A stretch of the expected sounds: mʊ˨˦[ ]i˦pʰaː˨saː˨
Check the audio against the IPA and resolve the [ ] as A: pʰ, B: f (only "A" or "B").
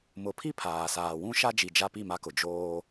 A